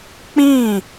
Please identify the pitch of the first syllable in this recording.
falling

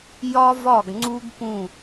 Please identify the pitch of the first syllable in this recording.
high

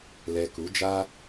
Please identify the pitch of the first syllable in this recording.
low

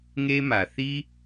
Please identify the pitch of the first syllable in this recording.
high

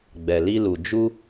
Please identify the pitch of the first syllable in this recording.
low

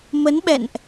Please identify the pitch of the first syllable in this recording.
rising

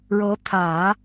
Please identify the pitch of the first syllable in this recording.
rising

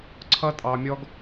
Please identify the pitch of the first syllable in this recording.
high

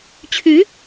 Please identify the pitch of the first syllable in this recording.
rising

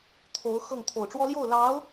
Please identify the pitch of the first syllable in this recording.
rising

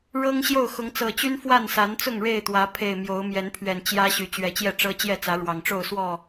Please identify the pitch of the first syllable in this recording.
high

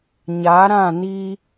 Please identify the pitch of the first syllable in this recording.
rising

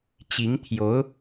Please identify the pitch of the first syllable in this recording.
rising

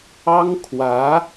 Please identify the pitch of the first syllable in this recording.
high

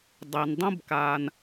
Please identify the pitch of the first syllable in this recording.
low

